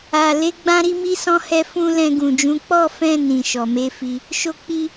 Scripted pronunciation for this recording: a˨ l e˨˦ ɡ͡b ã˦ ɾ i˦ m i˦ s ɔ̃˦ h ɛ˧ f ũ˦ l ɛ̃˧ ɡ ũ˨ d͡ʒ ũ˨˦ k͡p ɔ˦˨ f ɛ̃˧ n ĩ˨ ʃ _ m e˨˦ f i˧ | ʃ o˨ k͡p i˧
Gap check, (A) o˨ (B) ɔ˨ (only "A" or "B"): B